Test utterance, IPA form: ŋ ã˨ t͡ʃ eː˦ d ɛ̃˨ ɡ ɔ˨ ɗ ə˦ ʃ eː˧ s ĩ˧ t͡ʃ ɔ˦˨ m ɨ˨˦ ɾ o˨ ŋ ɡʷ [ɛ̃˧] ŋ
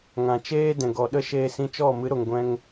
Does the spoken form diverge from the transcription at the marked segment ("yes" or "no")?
no